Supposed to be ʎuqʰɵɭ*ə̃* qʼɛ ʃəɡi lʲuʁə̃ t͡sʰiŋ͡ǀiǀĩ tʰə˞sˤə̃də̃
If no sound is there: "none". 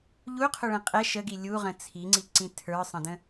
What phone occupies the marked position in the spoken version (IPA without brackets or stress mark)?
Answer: ɛ̃